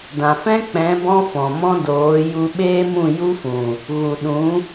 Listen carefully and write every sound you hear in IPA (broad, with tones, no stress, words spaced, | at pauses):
dã˨fɛ̃˦k͡pɛ̃˨˦ bɔ̃˦fɔ̃˨mɔ̃˦ doː˨˦ ju˧ɓeː˦mũ˦˨ ju˦fũ˨ | ɣu˨ɗũ˨˦